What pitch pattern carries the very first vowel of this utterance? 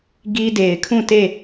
high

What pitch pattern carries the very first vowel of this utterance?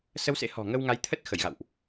rising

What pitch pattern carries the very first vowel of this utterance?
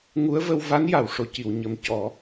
rising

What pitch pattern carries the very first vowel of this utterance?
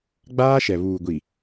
high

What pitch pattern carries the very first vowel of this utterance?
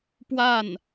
falling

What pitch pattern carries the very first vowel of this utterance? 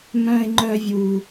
high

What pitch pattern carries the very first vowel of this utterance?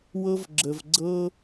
high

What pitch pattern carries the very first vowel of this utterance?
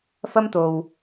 high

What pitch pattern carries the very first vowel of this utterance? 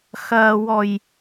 low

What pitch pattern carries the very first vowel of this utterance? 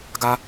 high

